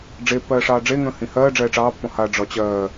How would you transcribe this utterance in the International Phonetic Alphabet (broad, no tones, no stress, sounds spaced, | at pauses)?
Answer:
ɖ͡ʐ e pː ɜː ʂ ɑː ɖ͡ʐ e ŋ ə̃ː h ĩ h ɜː ɖ͡ʐ ɛː ʈ͡ʂ ɑː pː ɔ̃ h a ɖ͡ʐ ɒ t͡ɕ ɜː